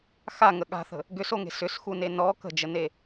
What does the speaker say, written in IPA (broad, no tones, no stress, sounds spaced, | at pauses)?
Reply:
x a ŋ ə ɠ a̤ θ ə̤ | ɡ ʏ s o ŋ e̤ s ʏ s x u n e n ɔ k ə̤ d͡ʒ ə n e